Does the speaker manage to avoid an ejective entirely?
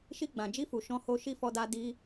yes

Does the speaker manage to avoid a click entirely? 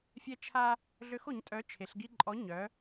no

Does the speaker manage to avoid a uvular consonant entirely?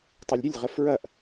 no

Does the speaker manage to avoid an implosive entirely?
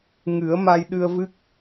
no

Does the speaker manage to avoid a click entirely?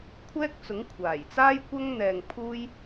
yes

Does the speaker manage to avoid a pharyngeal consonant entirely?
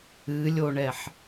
no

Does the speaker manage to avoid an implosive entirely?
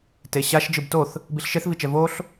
yes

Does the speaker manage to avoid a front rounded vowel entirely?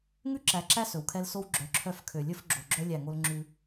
no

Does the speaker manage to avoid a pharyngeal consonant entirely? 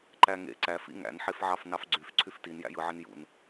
no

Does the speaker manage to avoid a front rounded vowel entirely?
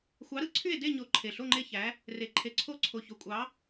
no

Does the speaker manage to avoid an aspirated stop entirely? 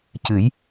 yes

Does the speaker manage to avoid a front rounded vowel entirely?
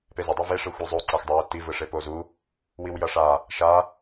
yes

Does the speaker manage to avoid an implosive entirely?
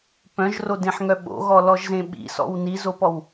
no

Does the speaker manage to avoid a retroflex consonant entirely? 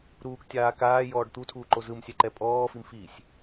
no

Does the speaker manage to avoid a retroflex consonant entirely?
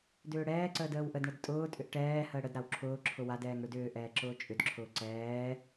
no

